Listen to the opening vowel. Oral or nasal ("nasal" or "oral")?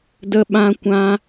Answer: oral